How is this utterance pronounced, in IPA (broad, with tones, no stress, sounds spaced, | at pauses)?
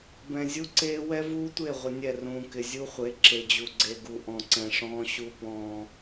b ɛ̃˨ zʲ u˦ ǀ eː˦ w ɛ˦ v uː˦ tʷ e˦˨ ʁʷ ɪ˨ nʲ ɛ˦˨ r ũː˨ k ɪ˨ zʲ u˦ χʷ e˨˦ ǁ e˨ d͡ʑ u˨ ɡ͡ǀ e˨ ɡ u˨ ʔ ɔ̃˨ ǀ ɛ̃˨ ʂ ɔ̃ː˦ ɕ u˦ p ɔ̃ː˦